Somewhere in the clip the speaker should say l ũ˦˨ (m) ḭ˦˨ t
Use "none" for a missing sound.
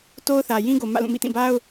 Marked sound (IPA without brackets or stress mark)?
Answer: m